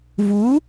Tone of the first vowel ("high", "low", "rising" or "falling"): rising